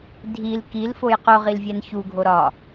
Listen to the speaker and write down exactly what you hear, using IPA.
dʱil kilfoj qoʁilvʲæn çuɡʱo ɾɒ

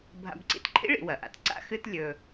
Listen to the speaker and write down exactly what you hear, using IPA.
bʱa̰˧bǀḭ˧˥tǃʰḭ˥ ɭḭ˩˧wɐ˩ʔa̰˧˥t ǀa̰˥xɨ˥t lʲɵ˧

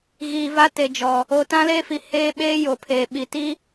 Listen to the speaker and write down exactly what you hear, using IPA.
ɣiː˨va˦te˨d͡ʒɔ˨ | o˨tã˦leː˦fi˨ heː˦ ɓeː˦jo˨pʰeː˨ɓi˨ ti˦

